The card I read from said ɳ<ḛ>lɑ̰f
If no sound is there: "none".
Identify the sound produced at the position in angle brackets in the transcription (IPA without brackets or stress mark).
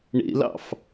ḛ